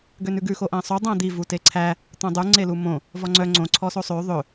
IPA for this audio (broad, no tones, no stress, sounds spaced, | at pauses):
ɡ ø n ʉ ɡ ʉ x o ʔ æ̃ sˤ u dˤ æ̃ d̪ i v u t e ǀʰ æ | t̪ õ dˤ u ŋ͡ǀ e l u m õ | v ɔ ŋ͡ǀ œ ŋ͡ǀ õ ǀʰ ɔ s o sˤ ø ðˤ ɵ